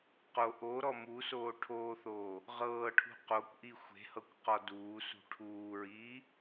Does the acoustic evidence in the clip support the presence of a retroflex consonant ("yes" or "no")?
yes